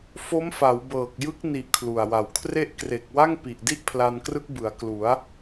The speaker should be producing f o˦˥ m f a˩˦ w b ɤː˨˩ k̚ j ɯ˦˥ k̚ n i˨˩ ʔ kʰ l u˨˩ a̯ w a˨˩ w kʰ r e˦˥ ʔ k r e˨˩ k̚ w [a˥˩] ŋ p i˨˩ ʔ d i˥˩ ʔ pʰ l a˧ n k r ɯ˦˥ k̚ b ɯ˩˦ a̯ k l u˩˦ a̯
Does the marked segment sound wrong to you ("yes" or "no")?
no